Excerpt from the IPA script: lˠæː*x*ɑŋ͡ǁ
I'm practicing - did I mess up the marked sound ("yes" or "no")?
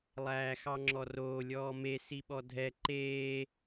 no